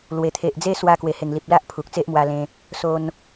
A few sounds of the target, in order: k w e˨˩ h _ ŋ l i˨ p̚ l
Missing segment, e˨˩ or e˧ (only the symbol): e˨˩